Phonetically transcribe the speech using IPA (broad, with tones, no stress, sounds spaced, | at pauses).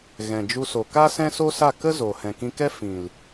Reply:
ɣ ɛ̃˨ d͡ʒ u˧ s o˨ k a˦ s ɛ̃˦ s o˦ s a˦˨ k ə˦ z o˨ h ɛ̃˨ k ĩ˧ k ɛ˦ f ĩ˨ l